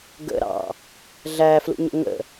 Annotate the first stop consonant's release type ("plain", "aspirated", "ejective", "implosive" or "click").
plain